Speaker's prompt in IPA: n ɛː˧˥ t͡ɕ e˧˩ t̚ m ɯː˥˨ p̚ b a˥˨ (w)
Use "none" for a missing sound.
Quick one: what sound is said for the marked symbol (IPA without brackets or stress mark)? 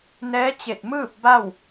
w